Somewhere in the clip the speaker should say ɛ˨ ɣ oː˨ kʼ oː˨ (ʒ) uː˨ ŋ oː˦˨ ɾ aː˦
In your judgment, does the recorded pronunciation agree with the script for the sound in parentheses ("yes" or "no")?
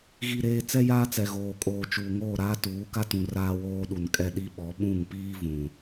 no